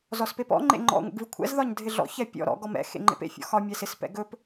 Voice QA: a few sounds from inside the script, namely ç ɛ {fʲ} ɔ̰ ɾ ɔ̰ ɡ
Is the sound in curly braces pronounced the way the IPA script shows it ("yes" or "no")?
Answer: no